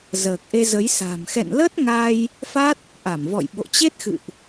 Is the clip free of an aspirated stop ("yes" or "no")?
yes